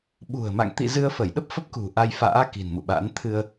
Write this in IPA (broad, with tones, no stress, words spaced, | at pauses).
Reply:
ɓṳ˨˩ə̯ma̰˧˨ŋ t̪ḭ˧˨ zɨ˧ə̯fə˧˩jɗə˦˥p̚fə˦˥p̚ kṳ˨˩ ʔa˧jfa̰ː˧˥ ki̤˨˩nmṵ˧˨ɓa̰˧˥n t̪ʰɨ˧ə̯